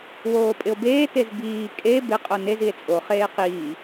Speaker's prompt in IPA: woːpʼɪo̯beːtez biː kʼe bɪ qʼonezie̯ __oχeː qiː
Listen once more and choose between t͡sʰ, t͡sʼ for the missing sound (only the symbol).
t͡sʼ